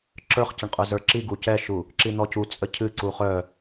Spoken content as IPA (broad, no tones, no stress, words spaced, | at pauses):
ǁə˞χcəɳqʼə˞ zə˞ǁiɡu cɛʃu | ǁin̪ɔcu t͡sʼəcʰɨ ǀuχœ